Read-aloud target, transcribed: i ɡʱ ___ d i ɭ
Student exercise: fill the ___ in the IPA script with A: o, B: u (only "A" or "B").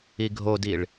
A